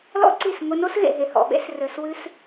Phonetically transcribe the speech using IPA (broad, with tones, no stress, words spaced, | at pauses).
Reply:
lɔ̰˦ǀi˦˨s ŋʷɘ˧no˦sɣḛ˨ ɦe˨hɔ̰˨ɓḛ˧s rɘ˨swɨ˧s